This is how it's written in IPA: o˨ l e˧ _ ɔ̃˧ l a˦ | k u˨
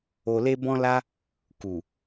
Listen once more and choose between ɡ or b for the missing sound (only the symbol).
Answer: b